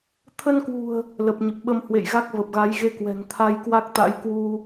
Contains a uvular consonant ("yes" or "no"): no